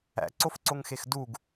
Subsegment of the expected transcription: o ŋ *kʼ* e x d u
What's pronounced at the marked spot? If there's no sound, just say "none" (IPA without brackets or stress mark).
x